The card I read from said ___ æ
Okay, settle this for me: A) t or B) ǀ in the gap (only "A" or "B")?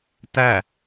A